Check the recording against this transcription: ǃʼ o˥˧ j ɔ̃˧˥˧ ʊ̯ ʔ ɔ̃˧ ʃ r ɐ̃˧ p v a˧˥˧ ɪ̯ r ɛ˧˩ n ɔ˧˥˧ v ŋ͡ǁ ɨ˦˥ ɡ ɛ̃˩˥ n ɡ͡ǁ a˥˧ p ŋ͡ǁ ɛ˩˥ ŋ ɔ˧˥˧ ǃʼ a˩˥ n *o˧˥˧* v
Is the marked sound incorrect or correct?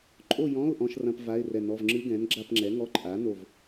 incorrect